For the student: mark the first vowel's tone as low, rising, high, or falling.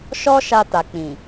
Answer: high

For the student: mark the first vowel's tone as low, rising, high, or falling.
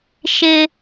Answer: high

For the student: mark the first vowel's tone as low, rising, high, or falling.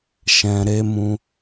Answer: low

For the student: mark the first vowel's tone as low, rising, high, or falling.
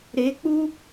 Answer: rising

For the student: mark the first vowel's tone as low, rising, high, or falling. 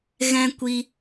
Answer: high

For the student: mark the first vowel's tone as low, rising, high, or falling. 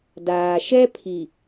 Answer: low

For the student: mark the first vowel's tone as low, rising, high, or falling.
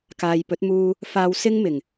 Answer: low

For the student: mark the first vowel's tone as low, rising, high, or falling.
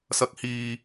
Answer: rising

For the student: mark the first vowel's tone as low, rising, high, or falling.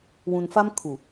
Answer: low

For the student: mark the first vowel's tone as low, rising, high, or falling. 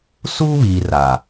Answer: high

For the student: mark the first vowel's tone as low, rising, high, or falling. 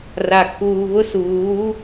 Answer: low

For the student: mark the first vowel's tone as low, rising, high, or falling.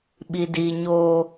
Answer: low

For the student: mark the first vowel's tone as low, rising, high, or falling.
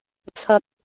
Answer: low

